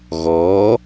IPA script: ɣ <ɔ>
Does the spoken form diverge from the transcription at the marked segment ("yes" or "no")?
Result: no